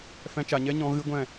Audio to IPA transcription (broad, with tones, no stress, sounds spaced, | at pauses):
f ɛ̃˧ t͡ʃ a˨ ɲ ɛ˦ ɲ ɔ̃˧ ɣ ɨ˦ ɡʷ ɛ̃˦˨